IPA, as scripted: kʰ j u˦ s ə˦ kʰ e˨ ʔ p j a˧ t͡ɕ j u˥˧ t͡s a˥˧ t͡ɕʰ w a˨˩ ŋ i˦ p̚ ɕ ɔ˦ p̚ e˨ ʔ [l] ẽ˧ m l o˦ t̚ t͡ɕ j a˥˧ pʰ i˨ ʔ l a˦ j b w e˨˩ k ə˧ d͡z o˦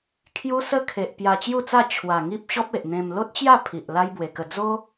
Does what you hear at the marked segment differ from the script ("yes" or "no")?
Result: yes